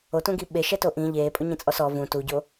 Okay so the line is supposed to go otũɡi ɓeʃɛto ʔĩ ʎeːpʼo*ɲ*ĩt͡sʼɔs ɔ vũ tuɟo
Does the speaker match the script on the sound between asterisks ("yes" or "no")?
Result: yes